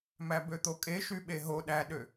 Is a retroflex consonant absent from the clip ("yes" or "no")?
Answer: yes